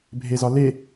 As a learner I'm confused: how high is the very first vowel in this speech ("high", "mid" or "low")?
mid